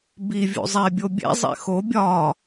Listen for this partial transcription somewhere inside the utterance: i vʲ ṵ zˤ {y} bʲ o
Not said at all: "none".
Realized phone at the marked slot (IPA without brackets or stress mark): e